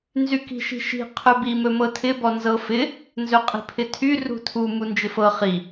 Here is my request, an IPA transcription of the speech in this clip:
nzyki̤ʃi̤ʃi̤ qʰɵbi mɵmɤtʰɪ bɔnzɤfɪ | nzɵqʼi̤pʰɪtʰy rṳtʰu mund͡ʒɪfɤ χi

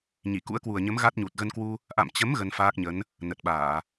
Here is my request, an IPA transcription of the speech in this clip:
ɲi˧˩kṵ˧˥ə̯kwu˨˩ə̯ɲə˨˦m ɣa˦˥t̚ɲu˨˩t̚ ɣə˧nkwu˧ | ʔa̰˧˨mt͡ɕə˨˦m ɣə˧nfaː˦˥k̚ɲə˨˦n | nə˨˩t̚ɓaː˧˩˨

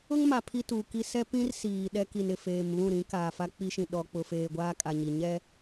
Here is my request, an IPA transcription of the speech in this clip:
ʊ˦ŋma˨ pʰi˦tuː˨ki˦ sɛ˦pĩ˦r siː˨ɗɛ˦ki˨n ɪ˨feː˨mβũ˦˨ɾĩ˨˦ kaː˨fa˦k͡pi˦ʃĩ˨ ɗɔ˨k͡pʊ˨ feː˨ɡʷaː˦kʼa˨ɲi˨ ɲɛ˦

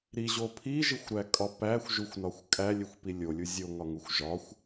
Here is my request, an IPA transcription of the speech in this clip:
ɾiʑo pʰiʒixʷɾækʼɒ pæxʷʒuxʷnɒxʷ kʼælʲexʷpi lʲolʲu zʲoŋɒŋuxʷ ʒɒxʷ

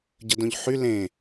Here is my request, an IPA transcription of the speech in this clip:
ɟədõʎħy lẽ

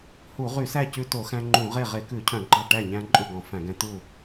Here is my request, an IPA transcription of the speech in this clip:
hu˧˩˧ʁy˧˩˧sæ˥˩ cʉ˦ to˧˩˧xæ̃˦ ŋ͡ǃũ˧˩˧ʁe˥˩ ʁe˧˩˧kʉ˧˩˧cʰœ̃˧˩˧ ɡ͡ǃɑ˥˩ʈæ˥˩ɲæ̃˦ ǃʼʉ˥˩ɡɔ̃˧˩˧fæ̃˧˩˧ɡɛ̃˦ t̪u˥˩

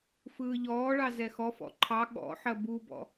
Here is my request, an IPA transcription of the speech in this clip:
fɯːʎɔːɭɑ zɛxɔfɔ̰ ǃʰɑ ɠɔ̰ħɐ bubɔ̰

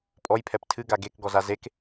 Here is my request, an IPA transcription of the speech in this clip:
pʼɔjpʰɛp tʰɨɡa ɡekɡɔza zek

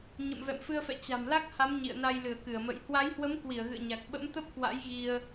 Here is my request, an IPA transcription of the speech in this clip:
ɲə̰˧˨mvɛ̰˧˨mfɨ˧ə̯fɛ̰˧˨ t͡ɕa̤˨˩mla˦˥k̚ha˨˦m ɲḭ˧˨ə̯na˧jlɨ˧˩ə̯ kɨ˧˩ə̯mə̰˧˨j hwa˨˦jhwə˨˦m kwi˧˩ə̯ɣɨ̰˧˨ə̯ɲa˨˩k̚ ɓə̰˧˥mt̪ə˦˥p̚kwa̰˧˥j ɣi˧ə̯

